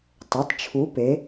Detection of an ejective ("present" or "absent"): absent